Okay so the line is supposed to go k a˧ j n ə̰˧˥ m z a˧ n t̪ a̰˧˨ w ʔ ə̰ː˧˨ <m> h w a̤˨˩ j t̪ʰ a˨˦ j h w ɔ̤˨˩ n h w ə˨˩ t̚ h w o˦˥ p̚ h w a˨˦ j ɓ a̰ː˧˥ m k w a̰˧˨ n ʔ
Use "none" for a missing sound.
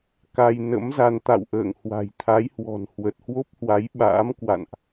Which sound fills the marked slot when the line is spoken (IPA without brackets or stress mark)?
ŋ